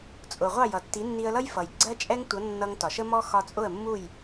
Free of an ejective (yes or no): no